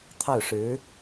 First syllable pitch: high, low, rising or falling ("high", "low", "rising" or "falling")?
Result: falling